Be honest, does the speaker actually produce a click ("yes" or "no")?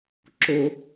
yes